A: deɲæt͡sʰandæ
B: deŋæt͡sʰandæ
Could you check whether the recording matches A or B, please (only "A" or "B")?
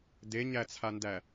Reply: A